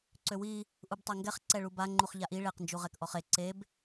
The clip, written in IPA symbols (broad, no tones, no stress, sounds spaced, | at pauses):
ǀ ø w i | ʔ u b tˤ a ŋ ɡ ɛ χ ǀ ɛ ɭ u b a ŋ͡ǃ u χ ʎ a ʔ i ɭ e q n d͡ʒ u ʁ ɛ k ʔ ɔ χ e ǀ e b